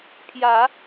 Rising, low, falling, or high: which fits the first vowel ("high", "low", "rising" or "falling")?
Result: rising